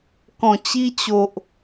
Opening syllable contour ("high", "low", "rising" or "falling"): low